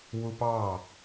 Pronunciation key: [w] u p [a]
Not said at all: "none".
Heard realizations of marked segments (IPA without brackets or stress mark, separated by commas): w, ɑ